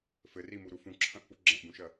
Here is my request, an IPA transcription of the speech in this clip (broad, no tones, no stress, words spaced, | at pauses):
fɘrimuɾu fũǁʰɐ̃ʔpu ɡ͡ǁɐ̃ʔbũʃɐ